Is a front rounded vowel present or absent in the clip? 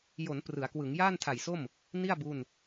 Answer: absent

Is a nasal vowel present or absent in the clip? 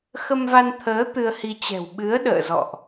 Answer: absent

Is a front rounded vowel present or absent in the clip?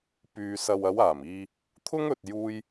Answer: present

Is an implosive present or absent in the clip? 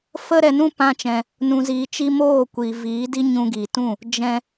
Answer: absent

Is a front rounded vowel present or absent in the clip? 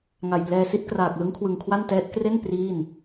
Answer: absent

